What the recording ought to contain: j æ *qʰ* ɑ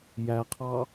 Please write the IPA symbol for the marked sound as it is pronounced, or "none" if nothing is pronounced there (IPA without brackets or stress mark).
qʰ